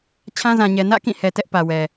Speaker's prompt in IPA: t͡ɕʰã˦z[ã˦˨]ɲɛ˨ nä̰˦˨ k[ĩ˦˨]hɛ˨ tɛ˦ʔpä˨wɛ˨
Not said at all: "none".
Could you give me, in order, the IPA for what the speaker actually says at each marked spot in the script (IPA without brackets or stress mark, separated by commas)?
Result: ã˨, ĩ˦˨